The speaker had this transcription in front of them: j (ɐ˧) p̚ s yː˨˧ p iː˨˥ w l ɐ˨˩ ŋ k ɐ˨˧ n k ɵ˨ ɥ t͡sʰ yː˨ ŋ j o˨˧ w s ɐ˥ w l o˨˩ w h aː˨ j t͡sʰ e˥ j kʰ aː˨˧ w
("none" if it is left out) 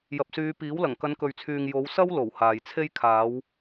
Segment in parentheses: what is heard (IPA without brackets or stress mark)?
ɐ˨